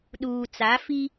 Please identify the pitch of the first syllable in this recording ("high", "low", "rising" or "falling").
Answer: low